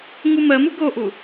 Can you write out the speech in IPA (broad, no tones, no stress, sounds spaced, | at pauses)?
ŋ u m ɜ m u ɡ o ʔ u